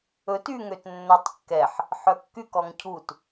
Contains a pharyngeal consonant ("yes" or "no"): yes